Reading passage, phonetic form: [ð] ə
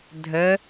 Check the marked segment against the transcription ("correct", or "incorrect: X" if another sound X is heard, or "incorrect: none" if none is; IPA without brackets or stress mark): incorrect: dʱ